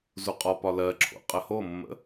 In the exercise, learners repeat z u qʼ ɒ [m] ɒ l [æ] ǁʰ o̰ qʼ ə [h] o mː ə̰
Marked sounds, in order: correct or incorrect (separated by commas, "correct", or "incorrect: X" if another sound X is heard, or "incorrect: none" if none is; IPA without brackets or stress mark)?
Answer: incorrect: p, incorrect: ɜ, correct